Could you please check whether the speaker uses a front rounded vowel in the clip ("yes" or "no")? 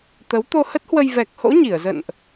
no